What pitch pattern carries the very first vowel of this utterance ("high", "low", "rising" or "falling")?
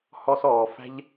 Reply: high